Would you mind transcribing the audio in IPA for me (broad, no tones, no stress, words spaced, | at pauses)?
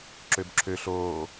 ǁøbǁʰø ɬoː